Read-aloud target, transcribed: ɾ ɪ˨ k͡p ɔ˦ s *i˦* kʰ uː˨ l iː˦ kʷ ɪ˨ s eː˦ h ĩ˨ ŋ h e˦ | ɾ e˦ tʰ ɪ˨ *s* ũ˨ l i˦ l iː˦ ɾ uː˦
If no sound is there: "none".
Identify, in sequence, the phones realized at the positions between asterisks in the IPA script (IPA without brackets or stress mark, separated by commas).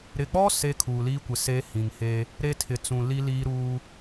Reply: e˦, t͡s